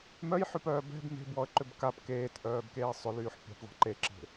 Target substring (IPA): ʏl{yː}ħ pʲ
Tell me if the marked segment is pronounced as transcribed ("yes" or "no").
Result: yes